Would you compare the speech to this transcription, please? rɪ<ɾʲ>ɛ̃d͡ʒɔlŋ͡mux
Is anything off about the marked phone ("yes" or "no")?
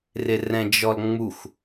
yes